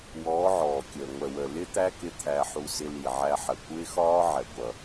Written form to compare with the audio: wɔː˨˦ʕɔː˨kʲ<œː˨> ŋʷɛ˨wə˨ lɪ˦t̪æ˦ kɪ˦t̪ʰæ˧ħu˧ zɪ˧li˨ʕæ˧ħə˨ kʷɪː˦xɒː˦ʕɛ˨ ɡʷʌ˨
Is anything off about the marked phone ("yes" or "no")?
yes